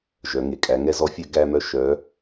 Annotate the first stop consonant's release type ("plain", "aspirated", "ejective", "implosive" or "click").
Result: ejective